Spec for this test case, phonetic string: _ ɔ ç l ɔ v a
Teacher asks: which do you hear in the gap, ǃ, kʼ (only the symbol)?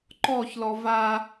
ǃ